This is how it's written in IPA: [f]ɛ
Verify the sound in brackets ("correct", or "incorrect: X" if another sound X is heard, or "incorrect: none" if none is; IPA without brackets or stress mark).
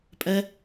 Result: incorrect: pʼ